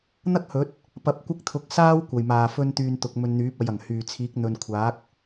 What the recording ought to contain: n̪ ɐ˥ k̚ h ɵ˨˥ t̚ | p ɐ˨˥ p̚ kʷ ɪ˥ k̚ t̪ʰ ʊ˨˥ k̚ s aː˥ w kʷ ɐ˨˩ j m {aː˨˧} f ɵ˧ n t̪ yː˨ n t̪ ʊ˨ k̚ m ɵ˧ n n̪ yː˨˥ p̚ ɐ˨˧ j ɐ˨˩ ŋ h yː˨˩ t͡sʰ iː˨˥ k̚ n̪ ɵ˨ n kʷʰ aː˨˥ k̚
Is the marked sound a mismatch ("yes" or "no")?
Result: yes